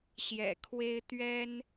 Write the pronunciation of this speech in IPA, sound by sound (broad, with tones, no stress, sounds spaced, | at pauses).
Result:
ɕ j ɛ̰˨˩ kʰ w e˦ ɪ̯ t̪ ɥ ɛ˦ n